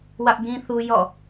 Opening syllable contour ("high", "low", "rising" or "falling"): high